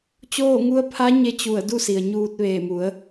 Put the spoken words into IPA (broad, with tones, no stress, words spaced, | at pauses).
t͡ɕoː˥˨ŋu˧˥ə̯ pʰa˧˥ ɲe˧t͡ɕu˧˩ə̯ du˥˨si˩ə̯ɲuː˧t̚ ʋeː˧˩mu˩˧ə̯